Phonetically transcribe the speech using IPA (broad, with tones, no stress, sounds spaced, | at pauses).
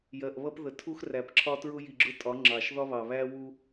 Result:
j ɜ˨ ʔ β ʌ˦ p ð ə˨ tʰ u˦ x r æ˨ p ǁʰ ɒ˦ t ɹ ʊ˦ j i˨ ɡ͡ǁ ʊ˦ tʼ ɒ˨˦ ŋ͡ǁ ɑ˨ ʃ ð ɒ˦ β ɑ˨ β æ˦ w u˦